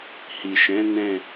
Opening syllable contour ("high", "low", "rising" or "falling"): low